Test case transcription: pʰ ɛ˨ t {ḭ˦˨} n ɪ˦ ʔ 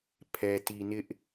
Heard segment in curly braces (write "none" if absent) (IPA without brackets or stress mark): i˨